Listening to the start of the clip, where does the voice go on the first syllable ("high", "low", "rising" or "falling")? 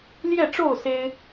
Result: falling